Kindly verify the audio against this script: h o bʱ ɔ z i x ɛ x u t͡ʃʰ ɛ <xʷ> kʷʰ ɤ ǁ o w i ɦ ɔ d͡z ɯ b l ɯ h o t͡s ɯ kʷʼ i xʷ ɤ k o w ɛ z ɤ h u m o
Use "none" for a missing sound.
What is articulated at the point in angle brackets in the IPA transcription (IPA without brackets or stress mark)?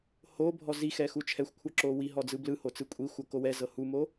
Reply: xʷ